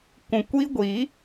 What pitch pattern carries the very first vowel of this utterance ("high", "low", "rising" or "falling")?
low